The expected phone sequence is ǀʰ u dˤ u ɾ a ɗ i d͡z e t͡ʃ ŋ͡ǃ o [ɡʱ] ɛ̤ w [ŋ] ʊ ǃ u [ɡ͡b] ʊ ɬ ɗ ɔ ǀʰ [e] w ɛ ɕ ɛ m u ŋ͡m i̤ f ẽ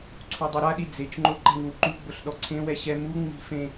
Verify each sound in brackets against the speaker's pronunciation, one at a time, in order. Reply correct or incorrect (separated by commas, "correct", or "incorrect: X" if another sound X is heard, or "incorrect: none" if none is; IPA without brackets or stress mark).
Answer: incorrect: ǃ, correct, correct, incorrect: ẽ